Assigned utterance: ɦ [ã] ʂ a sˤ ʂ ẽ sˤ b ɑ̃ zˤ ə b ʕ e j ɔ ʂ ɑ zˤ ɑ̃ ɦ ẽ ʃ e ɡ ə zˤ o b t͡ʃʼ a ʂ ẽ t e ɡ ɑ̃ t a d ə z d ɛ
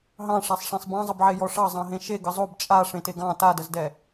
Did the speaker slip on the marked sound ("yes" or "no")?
yes